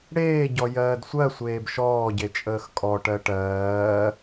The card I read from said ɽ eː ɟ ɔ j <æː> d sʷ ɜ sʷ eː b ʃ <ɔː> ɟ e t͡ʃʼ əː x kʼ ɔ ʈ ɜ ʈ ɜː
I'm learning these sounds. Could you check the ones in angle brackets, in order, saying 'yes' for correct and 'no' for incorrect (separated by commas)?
no, yes